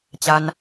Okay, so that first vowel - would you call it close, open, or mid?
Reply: open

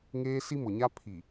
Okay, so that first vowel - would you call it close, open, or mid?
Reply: mid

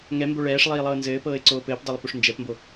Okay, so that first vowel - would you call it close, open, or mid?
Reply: mid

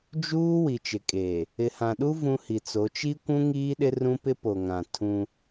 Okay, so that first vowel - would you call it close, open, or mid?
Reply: close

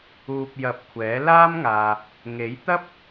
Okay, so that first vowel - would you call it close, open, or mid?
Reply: close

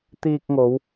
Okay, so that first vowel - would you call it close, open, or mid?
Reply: close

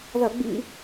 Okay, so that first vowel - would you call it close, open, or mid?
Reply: open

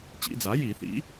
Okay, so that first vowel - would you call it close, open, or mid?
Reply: close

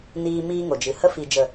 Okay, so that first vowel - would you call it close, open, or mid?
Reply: close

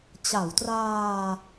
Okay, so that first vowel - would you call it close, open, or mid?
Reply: open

